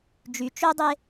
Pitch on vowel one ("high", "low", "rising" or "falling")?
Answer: low